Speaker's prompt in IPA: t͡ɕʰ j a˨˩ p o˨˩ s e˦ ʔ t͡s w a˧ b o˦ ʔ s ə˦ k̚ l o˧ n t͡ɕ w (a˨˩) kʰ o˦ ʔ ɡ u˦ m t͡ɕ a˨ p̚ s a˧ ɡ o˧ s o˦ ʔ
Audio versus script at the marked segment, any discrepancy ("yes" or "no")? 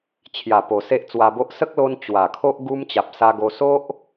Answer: no